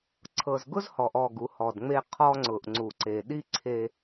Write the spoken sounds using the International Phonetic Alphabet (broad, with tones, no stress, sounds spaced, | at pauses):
ǀʰ ɤ˨ z ɡ ʊ˦ z h ɔ˨ ʔ ɔ˦˨ ɡ u˨˦ h ɔ˨ d ŋ͡m e˦ qʰ ɔ˦ ŋ͡ǀ ʊ˨ ʔ ŋ͡ǀ u˨ ǀ e˨ ɗ i˦ ǀʰ e˦